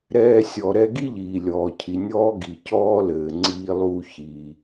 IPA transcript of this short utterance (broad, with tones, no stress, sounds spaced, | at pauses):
ɾ ɛː˧ sʲ ɔ˩ ɾ ɛ˧ ɡ i˥ ʎ iː˩ lʲ ɔː˩ cʰ i˩ nʲ ɔː˥ ɡ i˩ c ɔː˥ l ɘː˩ ŋ͡ǀ iː˧ lˠ uː˧ ç i˩